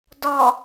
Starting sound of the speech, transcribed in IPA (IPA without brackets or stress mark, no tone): d